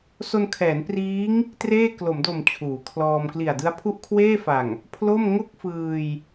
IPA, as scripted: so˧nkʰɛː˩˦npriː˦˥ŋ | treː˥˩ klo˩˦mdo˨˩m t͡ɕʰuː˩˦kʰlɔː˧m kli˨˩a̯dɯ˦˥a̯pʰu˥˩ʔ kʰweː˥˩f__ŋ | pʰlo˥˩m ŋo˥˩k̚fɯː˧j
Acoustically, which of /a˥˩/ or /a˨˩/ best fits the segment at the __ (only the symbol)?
a˨˩